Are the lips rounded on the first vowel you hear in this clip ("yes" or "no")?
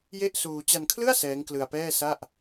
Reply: no